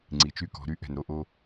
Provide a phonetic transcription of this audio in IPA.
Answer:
ŋ͡ǀi˨t͡ʃy˦kɔ̤˨˦ ɾy˦ʔɛ̤˨nɾo˦ʔo˦

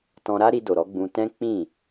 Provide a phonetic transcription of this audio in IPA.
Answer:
tɔ̃˧ɾa˦ ɾi˧do˨ɾɔ˨˦ ɡ͡bũ˧tɛ̃˦ k͡pĩ˦˨

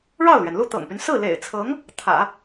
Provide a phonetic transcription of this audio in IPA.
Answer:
ɻɑ˥˩ʊ̯lɥɛ˩nlu˥˩ t̪ɤ̰˨˩ŋpy˦n sɹ̩˥˩lḛ˨˩ɪ̯t͡sʰɤ˧˥ŋ | t̪ʰä̰˨˩˦

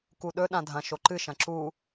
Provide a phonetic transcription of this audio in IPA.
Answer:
kuɗɵ ɗãdʱɐ̃ ʃoǃɨ ʃɐ̃ǁu

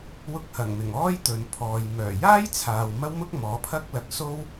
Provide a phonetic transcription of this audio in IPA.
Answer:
wʊ˧k̚hɐ˨˩ŋmɪ˨˩ŋ ɔː˥jt̪ɵ˨n pʰɔː˨j mœː˨˩jaː˥jt͡sʰaː˨w mɐ˥wmʊ˥k̚mɔː˨˥pʰɐ˥k̚ lɐ˧k̚so˥w

